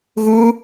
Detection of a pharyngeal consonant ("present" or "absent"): absent